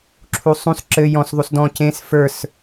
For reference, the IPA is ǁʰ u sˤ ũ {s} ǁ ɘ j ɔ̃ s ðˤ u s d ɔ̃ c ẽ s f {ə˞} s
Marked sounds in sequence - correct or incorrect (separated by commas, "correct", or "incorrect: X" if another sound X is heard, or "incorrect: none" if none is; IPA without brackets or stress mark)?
correct, correct